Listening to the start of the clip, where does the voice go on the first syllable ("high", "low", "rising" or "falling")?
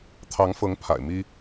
rising